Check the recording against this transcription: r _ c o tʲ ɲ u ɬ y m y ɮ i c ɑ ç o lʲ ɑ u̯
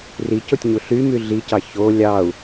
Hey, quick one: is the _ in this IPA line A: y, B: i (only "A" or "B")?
B